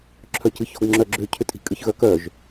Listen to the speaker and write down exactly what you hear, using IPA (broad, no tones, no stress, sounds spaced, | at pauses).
ǁʰ œ c ɨ ç ɔ̤ ɡ ŋ͡ǁ œ ɡ͡ǁ ʏ cʰ ʏ tʼ i̤ kʼ ɨ ç ɣ œ k œ ʒ